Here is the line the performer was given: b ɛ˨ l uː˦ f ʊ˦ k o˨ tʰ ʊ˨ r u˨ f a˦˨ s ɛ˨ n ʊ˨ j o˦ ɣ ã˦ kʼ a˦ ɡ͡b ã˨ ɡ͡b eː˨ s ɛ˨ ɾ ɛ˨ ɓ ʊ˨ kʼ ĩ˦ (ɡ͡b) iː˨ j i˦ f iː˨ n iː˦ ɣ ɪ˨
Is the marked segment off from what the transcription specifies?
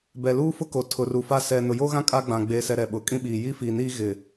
yes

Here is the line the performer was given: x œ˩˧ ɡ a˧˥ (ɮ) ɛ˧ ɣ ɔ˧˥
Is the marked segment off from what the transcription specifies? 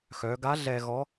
no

